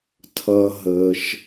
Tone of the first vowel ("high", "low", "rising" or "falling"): low